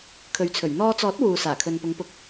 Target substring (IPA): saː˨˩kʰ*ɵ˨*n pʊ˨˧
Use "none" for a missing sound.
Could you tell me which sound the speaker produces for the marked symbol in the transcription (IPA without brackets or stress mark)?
ɵ˨